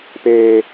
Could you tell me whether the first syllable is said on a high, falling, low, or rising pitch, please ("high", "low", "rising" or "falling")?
high